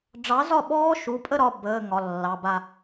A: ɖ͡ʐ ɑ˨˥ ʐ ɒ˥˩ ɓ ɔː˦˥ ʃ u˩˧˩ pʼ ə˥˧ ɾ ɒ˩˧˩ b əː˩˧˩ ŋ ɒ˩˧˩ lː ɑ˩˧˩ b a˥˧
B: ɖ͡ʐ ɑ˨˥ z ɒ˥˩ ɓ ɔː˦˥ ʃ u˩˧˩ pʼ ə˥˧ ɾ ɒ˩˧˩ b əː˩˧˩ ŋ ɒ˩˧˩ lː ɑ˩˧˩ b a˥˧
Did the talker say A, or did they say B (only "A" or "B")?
B